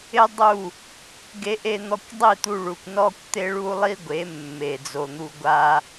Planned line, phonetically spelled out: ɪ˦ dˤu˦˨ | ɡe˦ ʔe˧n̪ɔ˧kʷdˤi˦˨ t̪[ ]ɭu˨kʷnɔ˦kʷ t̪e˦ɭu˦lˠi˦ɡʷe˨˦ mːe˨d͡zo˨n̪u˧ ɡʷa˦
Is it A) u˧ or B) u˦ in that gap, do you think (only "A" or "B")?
A